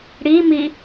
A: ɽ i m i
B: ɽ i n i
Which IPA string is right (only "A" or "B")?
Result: A